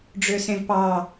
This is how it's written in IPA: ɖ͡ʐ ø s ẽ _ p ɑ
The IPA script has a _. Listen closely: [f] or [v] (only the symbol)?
v